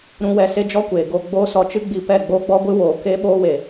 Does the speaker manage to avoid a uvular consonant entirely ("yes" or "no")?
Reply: yes